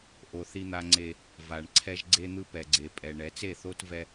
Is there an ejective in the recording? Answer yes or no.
yes